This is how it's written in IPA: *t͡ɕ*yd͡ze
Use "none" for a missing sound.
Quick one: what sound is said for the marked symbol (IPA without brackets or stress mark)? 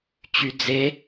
t͡ɕ